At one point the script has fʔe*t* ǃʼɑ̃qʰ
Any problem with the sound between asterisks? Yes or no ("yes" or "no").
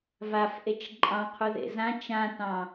yes